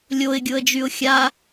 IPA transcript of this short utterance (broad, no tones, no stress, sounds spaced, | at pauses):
lʲ o ɪ̯ ɡʲ ʊ ə̯ d͡ʒ y ʊ̯ xʲ a